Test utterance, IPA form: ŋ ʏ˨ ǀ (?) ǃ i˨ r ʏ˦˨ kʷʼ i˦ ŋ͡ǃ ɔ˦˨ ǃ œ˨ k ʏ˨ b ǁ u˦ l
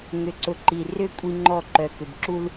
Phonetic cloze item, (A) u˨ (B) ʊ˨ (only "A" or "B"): B